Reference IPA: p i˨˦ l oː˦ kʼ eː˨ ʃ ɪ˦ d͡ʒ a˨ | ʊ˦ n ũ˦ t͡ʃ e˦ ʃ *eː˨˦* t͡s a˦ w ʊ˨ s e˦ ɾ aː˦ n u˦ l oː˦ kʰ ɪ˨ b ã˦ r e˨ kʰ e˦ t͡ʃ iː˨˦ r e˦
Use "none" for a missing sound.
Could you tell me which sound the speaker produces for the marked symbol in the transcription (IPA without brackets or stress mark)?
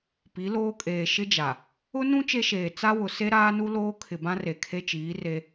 eː˨